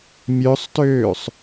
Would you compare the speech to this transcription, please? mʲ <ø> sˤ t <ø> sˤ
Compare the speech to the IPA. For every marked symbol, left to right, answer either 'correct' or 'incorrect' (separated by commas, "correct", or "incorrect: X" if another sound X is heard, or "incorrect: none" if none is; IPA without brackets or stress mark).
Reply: correct, incorrect: øː